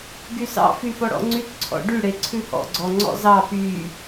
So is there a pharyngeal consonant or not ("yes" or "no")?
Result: no